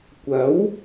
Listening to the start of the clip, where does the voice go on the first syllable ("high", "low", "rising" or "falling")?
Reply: rising